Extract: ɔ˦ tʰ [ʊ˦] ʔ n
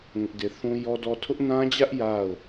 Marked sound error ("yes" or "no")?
no